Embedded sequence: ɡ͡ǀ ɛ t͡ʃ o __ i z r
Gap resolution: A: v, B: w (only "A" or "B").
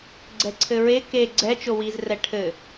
B